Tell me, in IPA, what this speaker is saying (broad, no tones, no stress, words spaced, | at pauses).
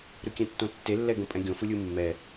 ɾɯkʲɛ̃tːõtːe lːɛɡõpʼɛ̃ɡʲõ fɯlʲɯmːɛ